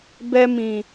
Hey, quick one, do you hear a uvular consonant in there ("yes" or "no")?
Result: no